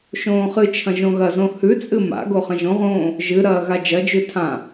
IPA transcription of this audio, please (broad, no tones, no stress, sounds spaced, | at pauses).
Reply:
ʃ õː χ ɨ t͡ʃʰ ɐ̃ ʒ õ ɣ ɐ z õ h ʉ t͡sʼ ɨ m a̰ ɡ o χ ɐ̃ ʒ õ ʁ õː | ʒ ɨ ɾ ɐː ɣ a d͡ʒ ɐ d͡ʒ ʉ tʰ ã